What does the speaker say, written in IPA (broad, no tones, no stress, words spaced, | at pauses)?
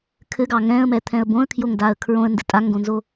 kʰɘɡɑ ŋɛ̃ə̯mɛt̪ʰɛ̃ə̯ bõə̯kʰjoŋdaə̯ kʰɹõə̯ndɘ tʼaŋɡõnzo